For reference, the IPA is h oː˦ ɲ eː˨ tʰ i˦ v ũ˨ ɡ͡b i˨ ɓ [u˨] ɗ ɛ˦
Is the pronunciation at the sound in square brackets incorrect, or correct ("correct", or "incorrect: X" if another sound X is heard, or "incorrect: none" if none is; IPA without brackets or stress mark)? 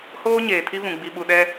correct